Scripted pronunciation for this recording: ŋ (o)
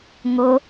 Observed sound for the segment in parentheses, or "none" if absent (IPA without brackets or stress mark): o